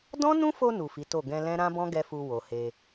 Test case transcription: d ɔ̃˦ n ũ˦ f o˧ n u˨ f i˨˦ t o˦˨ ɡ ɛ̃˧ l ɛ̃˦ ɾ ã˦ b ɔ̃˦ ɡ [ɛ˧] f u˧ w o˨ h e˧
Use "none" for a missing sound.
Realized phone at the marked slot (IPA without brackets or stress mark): ɛ˦